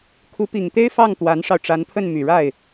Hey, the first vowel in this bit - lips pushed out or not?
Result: yes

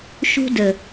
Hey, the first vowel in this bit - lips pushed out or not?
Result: yes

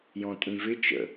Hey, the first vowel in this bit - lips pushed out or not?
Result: yes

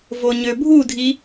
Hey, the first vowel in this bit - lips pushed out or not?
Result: yes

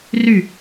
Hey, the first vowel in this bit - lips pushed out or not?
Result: yes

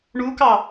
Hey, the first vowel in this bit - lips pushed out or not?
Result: yes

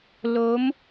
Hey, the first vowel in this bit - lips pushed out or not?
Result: yes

